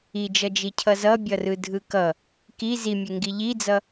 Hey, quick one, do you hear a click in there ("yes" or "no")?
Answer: no